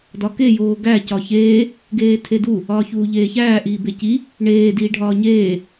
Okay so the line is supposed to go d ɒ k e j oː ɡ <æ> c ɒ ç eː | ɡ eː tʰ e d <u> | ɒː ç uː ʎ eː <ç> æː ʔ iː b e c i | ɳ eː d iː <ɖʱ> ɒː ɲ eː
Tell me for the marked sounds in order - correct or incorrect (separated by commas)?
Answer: correct, correct, correct, correct